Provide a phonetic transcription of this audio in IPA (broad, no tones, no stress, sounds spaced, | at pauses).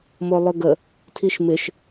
m o lˠ ʏ ɡ ə | tʰ i ʃ m ɪ ʃ